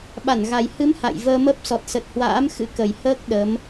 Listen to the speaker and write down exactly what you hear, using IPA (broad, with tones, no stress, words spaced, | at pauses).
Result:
ɓa˧˩nɣa˨˩j hɨ˨˦m ha̰˧˨jvəː˧mə˦˥p̚ sɔ˨˩t̚sə˨˩t̚hwa̰ː˧˥m xɨ̰˧˥kə˨˩j həː˦˥k̚ ɗə˨˦m